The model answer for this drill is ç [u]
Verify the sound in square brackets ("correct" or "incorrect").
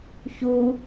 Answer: correct